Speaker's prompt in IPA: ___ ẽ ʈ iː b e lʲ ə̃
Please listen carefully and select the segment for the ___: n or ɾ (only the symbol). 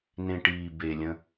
n